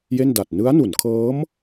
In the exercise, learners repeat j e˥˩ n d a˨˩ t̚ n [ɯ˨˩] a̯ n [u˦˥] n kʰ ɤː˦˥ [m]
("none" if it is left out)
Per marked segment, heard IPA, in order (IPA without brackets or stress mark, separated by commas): ɯ˦˥, u˩˦, m